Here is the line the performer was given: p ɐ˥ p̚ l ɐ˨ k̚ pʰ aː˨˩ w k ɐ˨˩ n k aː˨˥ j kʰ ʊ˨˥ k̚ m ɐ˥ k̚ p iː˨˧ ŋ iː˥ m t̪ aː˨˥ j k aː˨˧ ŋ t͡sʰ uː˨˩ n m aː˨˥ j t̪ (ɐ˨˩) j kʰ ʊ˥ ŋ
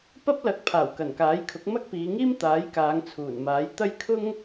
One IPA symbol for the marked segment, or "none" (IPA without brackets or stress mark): ɐ˥